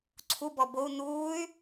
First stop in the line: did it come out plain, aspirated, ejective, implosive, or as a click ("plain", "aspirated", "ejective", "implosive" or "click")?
click